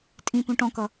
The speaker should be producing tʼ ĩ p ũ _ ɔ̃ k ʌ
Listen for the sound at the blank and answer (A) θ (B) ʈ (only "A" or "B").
B